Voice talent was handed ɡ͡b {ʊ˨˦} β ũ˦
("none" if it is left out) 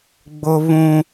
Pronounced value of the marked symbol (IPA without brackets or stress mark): ʊ˦